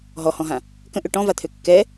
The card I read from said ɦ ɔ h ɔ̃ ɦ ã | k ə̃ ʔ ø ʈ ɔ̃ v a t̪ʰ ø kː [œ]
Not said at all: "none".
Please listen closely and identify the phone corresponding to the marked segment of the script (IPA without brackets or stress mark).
ɛ